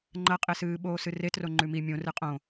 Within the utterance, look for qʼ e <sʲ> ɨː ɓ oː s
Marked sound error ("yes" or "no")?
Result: yes